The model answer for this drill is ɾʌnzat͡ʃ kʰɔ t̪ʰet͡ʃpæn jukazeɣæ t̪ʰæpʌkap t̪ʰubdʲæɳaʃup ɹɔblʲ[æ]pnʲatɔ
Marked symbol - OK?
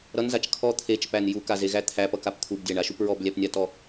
yes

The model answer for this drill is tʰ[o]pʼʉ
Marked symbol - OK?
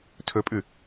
no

